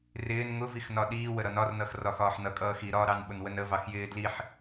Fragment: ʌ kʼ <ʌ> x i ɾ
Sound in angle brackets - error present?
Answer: yes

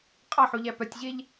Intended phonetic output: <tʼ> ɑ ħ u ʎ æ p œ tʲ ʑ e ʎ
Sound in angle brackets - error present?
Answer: yes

